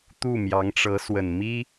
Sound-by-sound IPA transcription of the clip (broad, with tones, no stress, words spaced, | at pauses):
t̪u˥˩mjɑ˧˥ŋʈ͡ʂɤ˧˥swə˨˩n mi˥